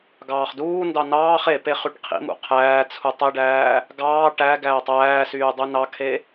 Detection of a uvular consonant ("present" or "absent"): present